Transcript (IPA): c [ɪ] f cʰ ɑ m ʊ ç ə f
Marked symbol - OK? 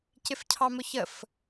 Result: yes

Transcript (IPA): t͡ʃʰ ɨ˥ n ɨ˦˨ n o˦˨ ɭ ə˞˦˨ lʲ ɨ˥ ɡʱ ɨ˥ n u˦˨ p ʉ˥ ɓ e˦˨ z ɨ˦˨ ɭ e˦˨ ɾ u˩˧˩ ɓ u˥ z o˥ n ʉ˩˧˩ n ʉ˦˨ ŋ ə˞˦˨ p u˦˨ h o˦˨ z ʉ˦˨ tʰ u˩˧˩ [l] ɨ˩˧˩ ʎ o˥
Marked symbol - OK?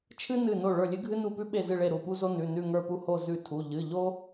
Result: no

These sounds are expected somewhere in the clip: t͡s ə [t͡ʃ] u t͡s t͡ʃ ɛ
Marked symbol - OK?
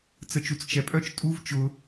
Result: yes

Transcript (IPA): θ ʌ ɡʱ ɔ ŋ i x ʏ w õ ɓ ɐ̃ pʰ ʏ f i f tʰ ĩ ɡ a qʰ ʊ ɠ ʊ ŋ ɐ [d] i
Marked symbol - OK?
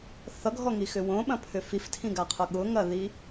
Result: no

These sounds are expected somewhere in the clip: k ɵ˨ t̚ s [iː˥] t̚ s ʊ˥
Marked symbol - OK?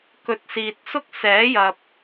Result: no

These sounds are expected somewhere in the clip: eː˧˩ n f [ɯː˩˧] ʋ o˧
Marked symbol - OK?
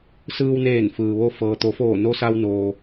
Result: no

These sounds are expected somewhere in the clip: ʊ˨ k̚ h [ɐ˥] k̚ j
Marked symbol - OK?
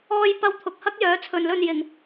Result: yes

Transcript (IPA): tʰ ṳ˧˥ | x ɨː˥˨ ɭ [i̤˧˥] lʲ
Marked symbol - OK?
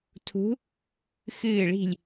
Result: no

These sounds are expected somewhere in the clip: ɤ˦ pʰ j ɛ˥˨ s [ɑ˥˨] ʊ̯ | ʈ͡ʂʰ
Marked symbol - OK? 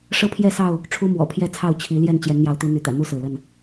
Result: yes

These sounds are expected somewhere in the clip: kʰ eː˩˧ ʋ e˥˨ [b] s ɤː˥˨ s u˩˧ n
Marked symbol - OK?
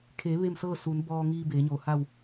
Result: no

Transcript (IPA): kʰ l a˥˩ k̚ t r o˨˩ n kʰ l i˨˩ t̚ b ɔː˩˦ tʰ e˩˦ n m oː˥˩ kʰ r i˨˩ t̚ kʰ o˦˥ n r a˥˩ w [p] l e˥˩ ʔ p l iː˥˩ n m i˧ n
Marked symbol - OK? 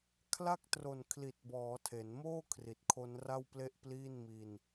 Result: yes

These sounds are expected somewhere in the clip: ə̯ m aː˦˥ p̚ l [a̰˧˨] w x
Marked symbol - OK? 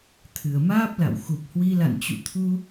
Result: yes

